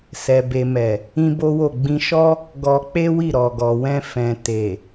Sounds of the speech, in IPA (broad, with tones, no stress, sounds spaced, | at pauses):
s ɛ˨ b e˨ m ɛ˨ | ĩ˦ b o˦ w o˦˨ ɡ͡b ĩ˧ ʃ ɔ˦ | ɡ ɔ˧ k͡p e˦ w i˦˨ ɾ ɔ˨ ɡ ɔ˨ w ɛ̃˧ f ɛ̃˨ t e˨